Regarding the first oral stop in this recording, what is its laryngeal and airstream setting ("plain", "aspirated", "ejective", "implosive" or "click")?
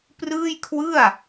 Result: plain